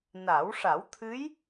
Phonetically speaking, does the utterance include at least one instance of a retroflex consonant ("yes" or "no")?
yes